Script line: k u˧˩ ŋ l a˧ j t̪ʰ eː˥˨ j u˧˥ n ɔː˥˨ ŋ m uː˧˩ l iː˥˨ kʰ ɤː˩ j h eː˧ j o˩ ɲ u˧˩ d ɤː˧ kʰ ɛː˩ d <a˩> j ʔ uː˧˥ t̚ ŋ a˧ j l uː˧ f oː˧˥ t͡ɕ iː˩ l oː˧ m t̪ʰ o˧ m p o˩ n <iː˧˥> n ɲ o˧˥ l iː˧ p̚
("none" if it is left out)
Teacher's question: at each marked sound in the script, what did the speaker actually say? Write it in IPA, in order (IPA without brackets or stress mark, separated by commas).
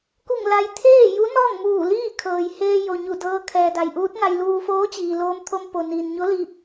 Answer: a˩, iː˩